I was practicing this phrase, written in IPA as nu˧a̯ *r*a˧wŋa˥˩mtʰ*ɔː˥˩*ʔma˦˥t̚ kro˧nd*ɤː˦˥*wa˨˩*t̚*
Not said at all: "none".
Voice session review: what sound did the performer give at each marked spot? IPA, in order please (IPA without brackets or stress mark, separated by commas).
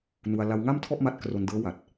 l, ɔ˥˩, ɤː˦˥, t̚